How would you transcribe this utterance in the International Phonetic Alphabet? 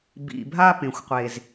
bḭ˨bʱa˦ pẽ˨xʷqʷe˨z

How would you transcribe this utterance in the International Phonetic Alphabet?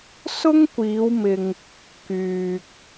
sʊ˥ŋkʷiː˨˧wmɪ˨ŋ | kyː˨k̚

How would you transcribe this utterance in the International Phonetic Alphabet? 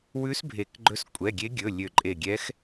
wʉ˧˥sbʱe˨˩˦kɡ͡ǃɵ˧˥s kʷʼɛ˩˧˩ɡʲe˧˥ɡʲɵ˩˧˩ lʲø˧˩ǃʼe˧˩ ɡʲɛ˧˥x

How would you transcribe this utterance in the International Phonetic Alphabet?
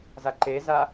zaǃeza

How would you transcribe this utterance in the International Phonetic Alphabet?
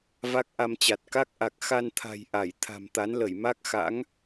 va˦˥k̚ʔa˧mt͡ɕa˨˩t̚ ka˦˥k̚ʔa˨˩k̚xa˧nt̪ʰa̤˨˩j ʔa˧˩j t̪ʰa̤˨˩mt̪a˨˦nlə˧˩j ma˦˥k̚xa̰˧˥ŋ

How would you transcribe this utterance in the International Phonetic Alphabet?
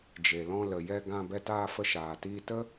d͡ʒe˨lɔ̃˧ lə˨jɛ˧ɡã˧ bɛ˧taː˧ fə˧ʃaː˨ tiː˧tə˦

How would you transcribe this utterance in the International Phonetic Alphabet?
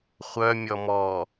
χʷœmʲɔ mɔ

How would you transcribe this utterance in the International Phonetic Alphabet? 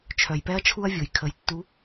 t͡ʃʰœ˨jpɛ˦ɐ̯t͡ʃʰu˦ɐ̯vʲo˨j kʰə˨˦jtːu˧

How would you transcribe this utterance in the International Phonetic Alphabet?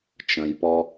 t͡ʃə̃jpɔ

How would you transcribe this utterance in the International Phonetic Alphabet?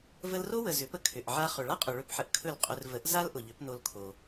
və˧lro˥wə˩ zʏ˩˥pə˧ kʰʏ˩ʔʕa˧ χɵ˩ɭa˥qʼʊ˩ ɭɵ˥˩pħə˧ʔ kʰɵ˥˩lqʼɵ˧r və˩˥ʔ za˥l ʔʊ˩ʎʏ˩˥pno˧lkʰo˩

